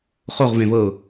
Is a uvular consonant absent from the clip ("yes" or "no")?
no